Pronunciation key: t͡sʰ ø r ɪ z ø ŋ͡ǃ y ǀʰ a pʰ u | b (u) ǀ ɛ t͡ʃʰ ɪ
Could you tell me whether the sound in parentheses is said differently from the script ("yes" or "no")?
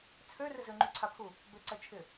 yes